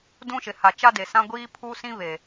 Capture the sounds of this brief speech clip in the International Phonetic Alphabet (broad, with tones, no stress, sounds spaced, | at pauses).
d ũ˦ ʃ ɪ˨ h a˨ t͡ʃ a˦ d e˨ s ã˦ ɡʷ iː˦ pʰ u˦ s ĩ˦ β e˨